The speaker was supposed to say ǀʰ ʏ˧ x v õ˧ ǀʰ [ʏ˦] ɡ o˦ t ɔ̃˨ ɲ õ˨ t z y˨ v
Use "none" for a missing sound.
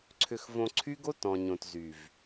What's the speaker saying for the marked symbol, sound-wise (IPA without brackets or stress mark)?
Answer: y˦